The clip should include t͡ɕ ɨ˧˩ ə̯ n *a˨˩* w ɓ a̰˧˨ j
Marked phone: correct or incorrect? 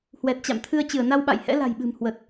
incorrect